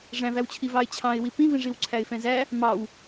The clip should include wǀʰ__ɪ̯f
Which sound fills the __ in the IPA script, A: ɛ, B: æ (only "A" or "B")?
B